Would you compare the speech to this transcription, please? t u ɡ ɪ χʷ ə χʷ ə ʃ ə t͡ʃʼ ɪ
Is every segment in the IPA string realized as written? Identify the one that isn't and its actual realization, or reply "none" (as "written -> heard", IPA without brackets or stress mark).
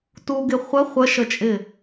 none